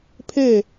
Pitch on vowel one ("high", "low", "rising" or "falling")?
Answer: falling